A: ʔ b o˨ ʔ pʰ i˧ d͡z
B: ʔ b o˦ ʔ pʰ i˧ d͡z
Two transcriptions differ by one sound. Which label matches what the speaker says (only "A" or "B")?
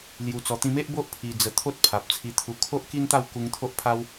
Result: B